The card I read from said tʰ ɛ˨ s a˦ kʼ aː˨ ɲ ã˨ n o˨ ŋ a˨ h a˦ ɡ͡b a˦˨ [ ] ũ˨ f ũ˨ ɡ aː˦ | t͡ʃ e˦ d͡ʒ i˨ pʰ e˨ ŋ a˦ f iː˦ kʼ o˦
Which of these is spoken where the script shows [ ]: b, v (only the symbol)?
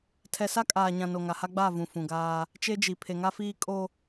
v